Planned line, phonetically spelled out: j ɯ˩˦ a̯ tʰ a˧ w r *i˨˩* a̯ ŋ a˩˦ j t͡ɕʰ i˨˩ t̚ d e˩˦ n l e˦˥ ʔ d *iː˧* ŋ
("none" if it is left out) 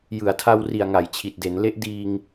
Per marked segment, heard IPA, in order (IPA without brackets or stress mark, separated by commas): i˨˩, iː˧